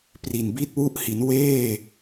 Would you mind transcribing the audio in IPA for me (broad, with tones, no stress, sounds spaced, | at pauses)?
p r i˨˩ n b i˥˩ t̚ w u˥˩ ʔ h i˩˦ n w eː˥˩